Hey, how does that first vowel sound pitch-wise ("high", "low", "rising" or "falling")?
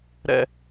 high